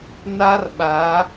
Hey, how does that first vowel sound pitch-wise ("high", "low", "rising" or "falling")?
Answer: high